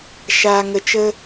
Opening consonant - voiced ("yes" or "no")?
no